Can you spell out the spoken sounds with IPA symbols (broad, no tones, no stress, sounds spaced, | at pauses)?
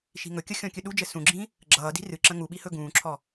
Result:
ʃ i̤ ŋ ɵ kʲ ʌ xʲ ɔ̃ kʲ ɵ ɗ u d͡ʒ ɘ s ũ ɡ͡ǁ ĩ | ɡ͡ǁ ʌː d i̤ r ɨ ǁ ə̃ ŋ u ɓ i h ɵ ɡ ũː ǁʰ ɔ